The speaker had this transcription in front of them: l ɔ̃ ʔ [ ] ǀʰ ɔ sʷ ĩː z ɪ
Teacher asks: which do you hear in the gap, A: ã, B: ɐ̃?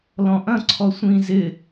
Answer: B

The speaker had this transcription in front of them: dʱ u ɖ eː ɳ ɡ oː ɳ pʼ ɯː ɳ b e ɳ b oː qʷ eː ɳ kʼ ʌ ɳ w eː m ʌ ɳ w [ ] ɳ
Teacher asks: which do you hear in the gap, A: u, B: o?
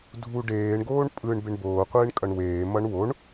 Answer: B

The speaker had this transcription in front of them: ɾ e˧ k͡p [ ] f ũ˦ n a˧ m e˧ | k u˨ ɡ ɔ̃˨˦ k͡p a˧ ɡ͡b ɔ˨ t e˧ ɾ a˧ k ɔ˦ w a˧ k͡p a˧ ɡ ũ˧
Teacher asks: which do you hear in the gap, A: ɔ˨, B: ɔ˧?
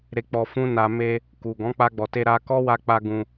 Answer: B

